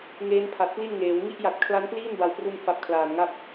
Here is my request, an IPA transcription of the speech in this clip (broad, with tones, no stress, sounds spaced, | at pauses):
ŋ eː˦˥ n pʰ a˨˩ t̚ p l i˥˩ n ŋ eː˩˦ w ŋ i˦˥ ʔ j a˨˩ t̚ kʰ l a˦˥ n p l iː˥˩ n b a˨˩ w p r u˧ n f a˨˩ p̚ kʰ l aː˨˩ n ŋ a˥˩ p̚